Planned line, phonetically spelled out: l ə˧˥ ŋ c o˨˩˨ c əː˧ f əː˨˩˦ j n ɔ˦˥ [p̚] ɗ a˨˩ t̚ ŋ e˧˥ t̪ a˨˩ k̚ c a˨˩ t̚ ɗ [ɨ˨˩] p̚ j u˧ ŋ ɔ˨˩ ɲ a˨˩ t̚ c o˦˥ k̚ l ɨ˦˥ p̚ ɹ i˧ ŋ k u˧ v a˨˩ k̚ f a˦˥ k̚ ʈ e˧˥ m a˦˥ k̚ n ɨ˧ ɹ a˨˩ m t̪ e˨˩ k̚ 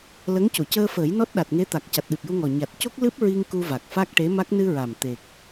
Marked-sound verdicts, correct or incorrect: incorrect, correct

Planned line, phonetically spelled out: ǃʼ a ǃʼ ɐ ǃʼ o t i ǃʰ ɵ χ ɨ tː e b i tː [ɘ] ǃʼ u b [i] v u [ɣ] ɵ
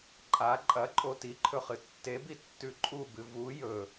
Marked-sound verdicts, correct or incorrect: incorrect, incorrect, incorrect

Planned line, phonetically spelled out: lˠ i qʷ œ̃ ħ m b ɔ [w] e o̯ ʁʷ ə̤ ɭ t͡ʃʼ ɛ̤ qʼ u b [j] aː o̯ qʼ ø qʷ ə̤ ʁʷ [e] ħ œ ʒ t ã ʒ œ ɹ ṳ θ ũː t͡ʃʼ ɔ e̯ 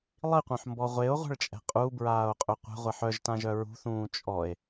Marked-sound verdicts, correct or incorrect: incorrect, incorrect, incorrect

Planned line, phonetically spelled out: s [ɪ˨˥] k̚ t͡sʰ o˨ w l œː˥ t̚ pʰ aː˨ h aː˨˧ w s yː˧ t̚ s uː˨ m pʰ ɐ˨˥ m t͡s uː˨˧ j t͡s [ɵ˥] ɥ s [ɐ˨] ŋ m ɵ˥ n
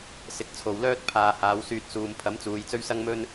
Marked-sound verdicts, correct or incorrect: incorrect, correct, incorrect

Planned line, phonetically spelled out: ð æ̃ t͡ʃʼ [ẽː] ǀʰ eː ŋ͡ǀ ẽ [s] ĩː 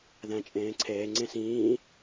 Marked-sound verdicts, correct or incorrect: correct, correct

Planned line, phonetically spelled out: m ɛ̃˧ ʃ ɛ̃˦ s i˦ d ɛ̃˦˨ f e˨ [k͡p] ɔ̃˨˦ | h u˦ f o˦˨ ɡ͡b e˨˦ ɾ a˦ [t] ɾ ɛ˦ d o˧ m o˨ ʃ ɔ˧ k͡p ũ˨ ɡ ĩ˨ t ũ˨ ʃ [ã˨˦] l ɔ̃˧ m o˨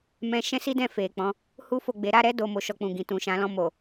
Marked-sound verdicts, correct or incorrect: correct, incorrect, correct

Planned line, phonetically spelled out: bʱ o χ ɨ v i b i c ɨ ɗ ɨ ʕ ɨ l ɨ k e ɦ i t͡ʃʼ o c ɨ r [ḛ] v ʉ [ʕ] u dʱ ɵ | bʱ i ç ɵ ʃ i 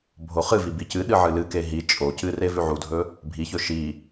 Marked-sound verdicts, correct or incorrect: incorrect, correct

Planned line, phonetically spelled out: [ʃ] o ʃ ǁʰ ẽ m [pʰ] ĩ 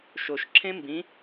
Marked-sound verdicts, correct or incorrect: correct, incorrect

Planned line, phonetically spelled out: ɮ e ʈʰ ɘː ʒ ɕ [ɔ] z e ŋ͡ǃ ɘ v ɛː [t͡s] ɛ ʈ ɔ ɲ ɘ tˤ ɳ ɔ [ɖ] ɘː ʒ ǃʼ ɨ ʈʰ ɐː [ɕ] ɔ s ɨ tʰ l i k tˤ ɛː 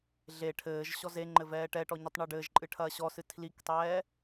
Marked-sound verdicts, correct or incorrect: correct, incorrect, correct, correct

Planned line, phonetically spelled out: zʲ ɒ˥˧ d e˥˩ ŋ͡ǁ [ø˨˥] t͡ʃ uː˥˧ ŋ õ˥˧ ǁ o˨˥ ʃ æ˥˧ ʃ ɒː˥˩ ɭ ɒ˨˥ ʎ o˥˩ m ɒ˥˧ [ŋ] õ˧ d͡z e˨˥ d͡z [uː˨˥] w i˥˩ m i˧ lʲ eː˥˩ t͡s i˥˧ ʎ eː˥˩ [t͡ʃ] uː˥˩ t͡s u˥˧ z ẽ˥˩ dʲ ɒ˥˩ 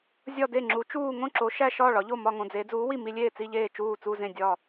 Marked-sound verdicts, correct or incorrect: incorrect, correct, correct, correct

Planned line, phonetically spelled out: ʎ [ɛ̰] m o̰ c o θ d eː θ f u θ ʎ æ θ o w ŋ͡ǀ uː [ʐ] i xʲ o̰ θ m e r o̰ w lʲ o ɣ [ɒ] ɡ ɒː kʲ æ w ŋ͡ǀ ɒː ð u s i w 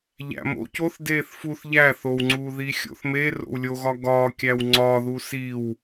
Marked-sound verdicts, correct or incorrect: incorrect, incorrect, correct

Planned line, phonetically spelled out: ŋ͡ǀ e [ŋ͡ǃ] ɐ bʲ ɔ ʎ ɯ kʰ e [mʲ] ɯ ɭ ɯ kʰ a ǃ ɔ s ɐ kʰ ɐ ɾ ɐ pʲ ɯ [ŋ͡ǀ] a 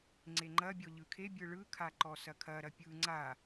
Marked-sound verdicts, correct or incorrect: correct, incorrect, correct

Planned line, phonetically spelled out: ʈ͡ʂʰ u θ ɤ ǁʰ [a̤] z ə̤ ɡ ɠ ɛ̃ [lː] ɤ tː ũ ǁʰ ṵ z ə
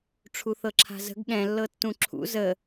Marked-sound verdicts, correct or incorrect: correct, correct

